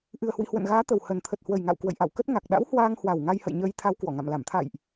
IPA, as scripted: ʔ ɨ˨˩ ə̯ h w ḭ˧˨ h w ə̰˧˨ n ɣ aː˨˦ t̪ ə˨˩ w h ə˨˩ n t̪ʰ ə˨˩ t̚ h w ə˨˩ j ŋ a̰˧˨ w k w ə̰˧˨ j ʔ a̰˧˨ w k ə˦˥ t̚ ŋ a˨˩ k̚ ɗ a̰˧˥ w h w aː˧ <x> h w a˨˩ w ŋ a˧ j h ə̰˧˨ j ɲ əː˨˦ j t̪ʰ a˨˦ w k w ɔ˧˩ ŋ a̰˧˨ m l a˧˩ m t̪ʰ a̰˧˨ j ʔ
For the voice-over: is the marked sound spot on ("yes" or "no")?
no